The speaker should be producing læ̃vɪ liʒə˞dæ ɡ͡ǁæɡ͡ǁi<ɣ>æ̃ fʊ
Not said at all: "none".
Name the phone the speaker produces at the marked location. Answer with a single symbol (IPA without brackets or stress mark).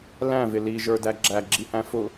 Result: h